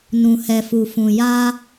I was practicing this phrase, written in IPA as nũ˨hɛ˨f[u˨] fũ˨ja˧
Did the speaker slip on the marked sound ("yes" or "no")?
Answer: no